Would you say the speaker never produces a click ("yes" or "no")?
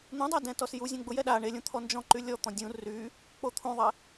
no